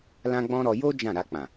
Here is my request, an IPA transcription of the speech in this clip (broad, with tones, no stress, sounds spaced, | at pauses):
l ã˦ ɡ͡b ɔ̃˦ ɾ ɔ˧ j o˦ d͡ʒ ã˦˨ ɾ a˧ k͡p ã˨